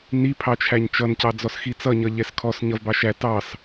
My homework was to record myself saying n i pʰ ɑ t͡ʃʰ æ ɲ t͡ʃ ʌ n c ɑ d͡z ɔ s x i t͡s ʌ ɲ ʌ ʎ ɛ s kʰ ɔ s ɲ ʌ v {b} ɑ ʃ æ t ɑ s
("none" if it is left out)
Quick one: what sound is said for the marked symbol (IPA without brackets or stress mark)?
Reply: b